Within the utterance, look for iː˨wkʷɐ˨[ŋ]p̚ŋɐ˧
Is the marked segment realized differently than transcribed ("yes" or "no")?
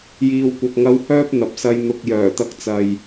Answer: yes